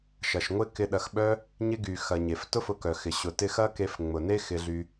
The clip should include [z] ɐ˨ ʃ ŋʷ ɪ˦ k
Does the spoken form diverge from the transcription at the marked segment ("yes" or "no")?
yes